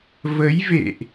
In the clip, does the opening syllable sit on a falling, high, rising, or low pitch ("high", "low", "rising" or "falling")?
rising